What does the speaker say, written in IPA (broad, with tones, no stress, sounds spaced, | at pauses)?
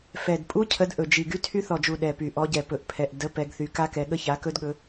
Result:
f ɛ˨˩ d pʼ u˦˥ cʰ ə˨˦ d ʔ ɵ˨˩ d͡ʒ i˨˩ ɡ y˦˥ tʰ y˦˥ θ ɔ˨˩ d͡ʒ u˨˩ ɗ ɛ˨˩ p y˨˩ ʔ ɔ˨˦ ɟ ɛ˨˩ p ɵ˨˩ ʔ pʰ ɛ˨˩ ʔ d ə˨˦ p ɛ˨˦ ɡ θ y˨˦ k a˦˥ k ɛ˨˦ ɠ ə˦˥ ç a˨˦ k ɵ˦˥ d ɠ ɵ˨˦